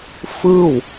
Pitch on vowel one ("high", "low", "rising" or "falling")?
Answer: falling